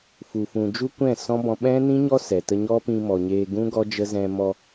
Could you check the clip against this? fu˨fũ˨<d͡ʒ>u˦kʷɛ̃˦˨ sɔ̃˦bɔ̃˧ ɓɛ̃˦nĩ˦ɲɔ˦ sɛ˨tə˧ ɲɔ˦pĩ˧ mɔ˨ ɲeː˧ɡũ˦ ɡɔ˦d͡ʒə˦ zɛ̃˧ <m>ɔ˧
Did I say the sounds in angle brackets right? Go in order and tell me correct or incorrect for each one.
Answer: correct, correct

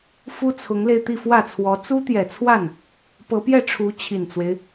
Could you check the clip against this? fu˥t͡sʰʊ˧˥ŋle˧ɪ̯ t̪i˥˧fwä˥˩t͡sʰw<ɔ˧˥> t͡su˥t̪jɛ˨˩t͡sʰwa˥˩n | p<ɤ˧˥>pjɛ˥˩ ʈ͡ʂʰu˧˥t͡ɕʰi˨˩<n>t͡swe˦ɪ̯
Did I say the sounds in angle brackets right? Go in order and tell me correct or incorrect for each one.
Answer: correct, correct, correct

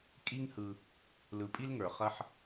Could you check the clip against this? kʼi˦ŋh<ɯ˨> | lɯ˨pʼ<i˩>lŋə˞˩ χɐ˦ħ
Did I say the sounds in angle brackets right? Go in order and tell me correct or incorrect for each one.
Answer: correct, incorrect

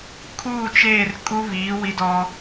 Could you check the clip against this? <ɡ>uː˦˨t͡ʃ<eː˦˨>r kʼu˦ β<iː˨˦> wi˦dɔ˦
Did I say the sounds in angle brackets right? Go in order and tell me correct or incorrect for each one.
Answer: incorrect, correct, correct

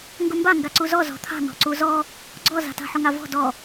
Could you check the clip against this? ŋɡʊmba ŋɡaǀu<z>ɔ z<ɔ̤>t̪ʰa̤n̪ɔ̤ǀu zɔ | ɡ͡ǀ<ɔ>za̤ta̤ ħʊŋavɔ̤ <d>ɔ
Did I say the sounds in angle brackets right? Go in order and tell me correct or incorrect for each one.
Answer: correct, correct, correct, correct

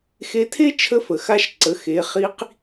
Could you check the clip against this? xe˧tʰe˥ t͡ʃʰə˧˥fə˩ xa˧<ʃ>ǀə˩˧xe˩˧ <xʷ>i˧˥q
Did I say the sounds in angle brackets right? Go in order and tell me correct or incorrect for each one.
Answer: correct, incorrect

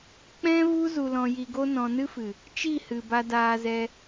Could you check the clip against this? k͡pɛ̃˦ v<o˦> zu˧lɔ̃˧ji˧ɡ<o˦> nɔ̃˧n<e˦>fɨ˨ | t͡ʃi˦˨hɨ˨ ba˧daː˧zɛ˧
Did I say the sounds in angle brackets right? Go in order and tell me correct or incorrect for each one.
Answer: incorrect, correct, incorrect

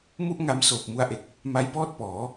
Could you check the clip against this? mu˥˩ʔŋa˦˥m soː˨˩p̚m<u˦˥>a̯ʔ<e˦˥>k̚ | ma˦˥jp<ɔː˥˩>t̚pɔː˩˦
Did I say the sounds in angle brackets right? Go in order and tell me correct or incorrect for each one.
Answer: incorrect, incorrect, correct

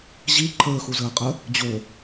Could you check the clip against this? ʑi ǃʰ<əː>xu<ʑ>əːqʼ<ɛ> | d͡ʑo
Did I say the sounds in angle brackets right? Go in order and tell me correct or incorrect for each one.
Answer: correct, incorrect, incorrect

